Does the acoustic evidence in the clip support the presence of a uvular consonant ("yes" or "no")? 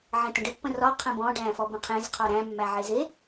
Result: yes